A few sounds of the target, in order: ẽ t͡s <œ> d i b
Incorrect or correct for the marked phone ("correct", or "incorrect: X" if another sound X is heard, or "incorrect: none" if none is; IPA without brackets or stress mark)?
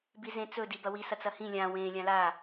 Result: incorrect: ɵ